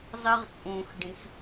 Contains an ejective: yes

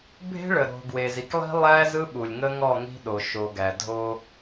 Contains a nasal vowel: no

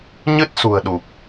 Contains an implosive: yes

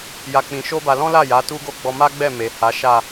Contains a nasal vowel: yes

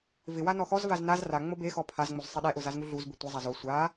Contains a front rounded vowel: no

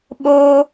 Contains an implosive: yes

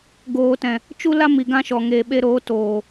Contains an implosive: yes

